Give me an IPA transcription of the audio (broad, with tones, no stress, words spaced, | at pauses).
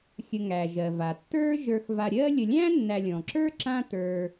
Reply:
xʲə˨ŋæ˩ʒɜ˩va˩ tːə˞˦ʒə˞˨xva˨ ɾʲɜ˦lʲə˨lʲæ̃˥ nːæ˨lʲɔ̃˩ǁə˞˥ǁã˦ tə˞˨